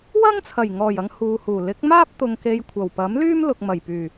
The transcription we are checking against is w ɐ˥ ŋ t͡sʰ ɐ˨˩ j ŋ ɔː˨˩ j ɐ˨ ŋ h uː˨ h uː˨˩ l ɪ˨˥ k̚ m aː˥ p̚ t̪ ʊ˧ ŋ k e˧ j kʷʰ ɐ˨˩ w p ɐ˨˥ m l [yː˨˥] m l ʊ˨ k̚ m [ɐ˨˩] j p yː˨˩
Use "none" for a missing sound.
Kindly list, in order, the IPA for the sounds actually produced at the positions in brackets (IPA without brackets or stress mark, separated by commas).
yː˥, ɐ˨˩